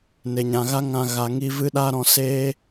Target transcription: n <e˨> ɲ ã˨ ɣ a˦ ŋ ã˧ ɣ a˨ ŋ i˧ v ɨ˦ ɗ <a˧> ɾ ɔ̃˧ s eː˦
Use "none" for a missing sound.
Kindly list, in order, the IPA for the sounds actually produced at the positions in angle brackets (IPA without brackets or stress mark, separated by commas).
e˨, a˦